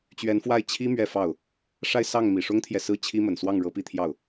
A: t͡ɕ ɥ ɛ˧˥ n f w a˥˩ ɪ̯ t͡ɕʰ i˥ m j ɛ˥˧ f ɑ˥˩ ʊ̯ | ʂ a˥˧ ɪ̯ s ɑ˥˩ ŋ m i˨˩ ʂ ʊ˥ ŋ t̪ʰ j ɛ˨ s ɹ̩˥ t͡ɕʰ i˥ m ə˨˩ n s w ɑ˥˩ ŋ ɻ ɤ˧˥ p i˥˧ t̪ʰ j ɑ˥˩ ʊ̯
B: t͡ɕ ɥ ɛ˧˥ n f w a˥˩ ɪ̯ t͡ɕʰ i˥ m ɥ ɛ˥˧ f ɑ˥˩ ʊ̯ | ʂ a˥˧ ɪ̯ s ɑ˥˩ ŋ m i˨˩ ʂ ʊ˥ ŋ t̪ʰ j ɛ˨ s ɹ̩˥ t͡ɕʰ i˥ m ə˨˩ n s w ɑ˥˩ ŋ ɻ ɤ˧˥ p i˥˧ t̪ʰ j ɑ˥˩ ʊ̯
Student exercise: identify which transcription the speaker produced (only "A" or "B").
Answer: B